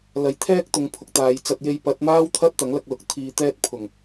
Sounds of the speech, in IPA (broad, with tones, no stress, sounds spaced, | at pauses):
l ɐ˨ j t̪ʰ ɛː˥ k̚ t̪ ʊ˨ ŋ pʰ ʊ˨ k̚ t̪ aː˨ j t͡s ɐ˧ t̚ j e˧ j p ɐ˨˥ t̚ m aː˥ w t̪ʰ ɐ˥ t̚ t̪ ɐ˨˥ ŋ l ɐ˧ k̚ l ʊ˨˥ k̚ t̪ʰ iː˧ t̪ ɛː˥ t̚ pʰ ʊ˨˩ ŋ